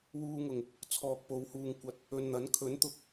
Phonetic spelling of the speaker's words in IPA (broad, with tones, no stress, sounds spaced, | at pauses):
w uː˧ ŋ ʊ˨˩ ŋ | t͡sʰ ɔː˨ k̚ p o˨˧ w h uː˨ ŋ kʷ ɐ˨˥ t̚ | ɵ˨ n n̪ ɐ˨˥ n kʰ ɵ˨˥ n t̪ ʊ˨ k̚